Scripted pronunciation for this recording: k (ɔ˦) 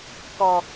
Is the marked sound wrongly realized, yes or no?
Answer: yes